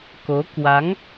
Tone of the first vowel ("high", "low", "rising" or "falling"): rising